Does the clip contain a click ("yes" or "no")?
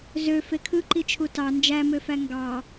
yes